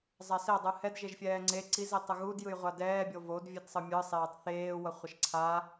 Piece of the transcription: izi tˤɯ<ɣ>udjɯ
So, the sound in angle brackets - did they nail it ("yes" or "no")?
yes